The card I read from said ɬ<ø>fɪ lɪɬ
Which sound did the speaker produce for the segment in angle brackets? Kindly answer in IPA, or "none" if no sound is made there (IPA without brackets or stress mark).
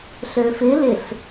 ø